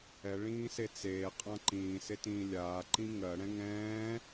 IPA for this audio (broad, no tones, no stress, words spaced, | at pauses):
ɛɭĩːse t͡seːqʼã ǃĩːsetĩː lʲaːǃĩ ŋɜɽɛ̃ ŋɛ̃ː